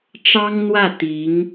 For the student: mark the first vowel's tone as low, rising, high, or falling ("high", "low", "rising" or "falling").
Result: high